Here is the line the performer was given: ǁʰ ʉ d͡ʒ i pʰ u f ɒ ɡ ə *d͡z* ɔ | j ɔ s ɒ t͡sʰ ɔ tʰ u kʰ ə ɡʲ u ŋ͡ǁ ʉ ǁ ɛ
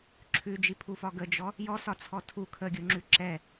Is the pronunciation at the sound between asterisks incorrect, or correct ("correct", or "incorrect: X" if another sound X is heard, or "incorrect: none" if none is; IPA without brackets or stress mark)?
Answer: incorrect: d͡ʒ